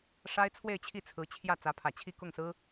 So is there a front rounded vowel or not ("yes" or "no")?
no